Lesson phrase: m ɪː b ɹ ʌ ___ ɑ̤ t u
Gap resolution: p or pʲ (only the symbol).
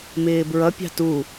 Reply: pʲ